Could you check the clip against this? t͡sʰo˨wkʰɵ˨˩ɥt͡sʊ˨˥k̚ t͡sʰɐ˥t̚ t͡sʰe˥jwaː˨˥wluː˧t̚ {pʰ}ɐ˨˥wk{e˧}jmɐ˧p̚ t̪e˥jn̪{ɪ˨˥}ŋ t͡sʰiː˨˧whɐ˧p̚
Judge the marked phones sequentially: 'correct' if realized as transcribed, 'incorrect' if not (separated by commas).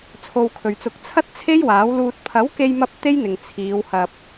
correct, correct, incorrect